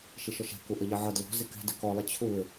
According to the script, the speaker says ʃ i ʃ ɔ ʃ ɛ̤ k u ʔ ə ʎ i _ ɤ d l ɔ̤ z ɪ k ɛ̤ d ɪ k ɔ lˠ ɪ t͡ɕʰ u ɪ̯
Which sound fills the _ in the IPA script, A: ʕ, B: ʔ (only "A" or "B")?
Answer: A